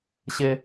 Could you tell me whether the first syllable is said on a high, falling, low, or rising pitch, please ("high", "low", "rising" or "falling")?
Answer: high